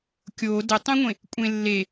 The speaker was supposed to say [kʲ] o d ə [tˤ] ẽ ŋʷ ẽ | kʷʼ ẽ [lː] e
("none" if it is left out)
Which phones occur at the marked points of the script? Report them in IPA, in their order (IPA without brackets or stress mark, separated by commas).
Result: kʲ, tˤ, lː